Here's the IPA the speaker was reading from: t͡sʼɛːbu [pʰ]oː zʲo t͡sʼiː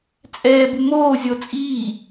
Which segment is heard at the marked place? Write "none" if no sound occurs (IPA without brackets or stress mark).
m